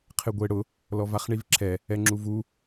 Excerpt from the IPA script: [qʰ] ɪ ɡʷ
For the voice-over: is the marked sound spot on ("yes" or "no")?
yes